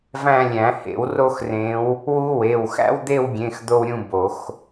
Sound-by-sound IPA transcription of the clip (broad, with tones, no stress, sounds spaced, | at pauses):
v æ̃˦˨ lʲ æ̃˨˩˦ h ḛ˨˩˦ w r o˦˨ x r ẽ˨˦ w | w u˦ w e˩˧˩ w x æ̰˦ w d̪ e˦˨ w ɡʲ ẽ˩˧˩ x d̪ o˦ w ɾʲ ũ˦˨ b o˨˩˦ x